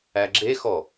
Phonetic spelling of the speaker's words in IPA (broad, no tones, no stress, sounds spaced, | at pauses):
æ ɡ͡ǁ e x ɔ